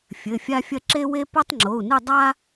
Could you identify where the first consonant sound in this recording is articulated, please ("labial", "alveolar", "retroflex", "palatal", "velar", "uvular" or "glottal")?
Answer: labial